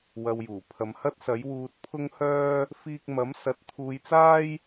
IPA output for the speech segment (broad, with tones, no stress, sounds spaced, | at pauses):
w ɐ˧ w j uː˨˩ pʰ ɐ˧ m h ɐ˥ t̚ s ɐ˨˥ j w uː˧ t̚ pʰ ʊ˥ ŋ h œː˥ | f iː˥ k̚ m ɐ˨˥ m s ɐ˨˥ t̚ t̪ʰ uː˧ j t͡s aː˥ j